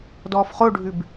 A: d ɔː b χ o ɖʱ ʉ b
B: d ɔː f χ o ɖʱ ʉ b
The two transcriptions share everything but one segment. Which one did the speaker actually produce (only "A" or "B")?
B